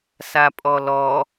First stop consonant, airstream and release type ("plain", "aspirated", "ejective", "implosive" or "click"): ejective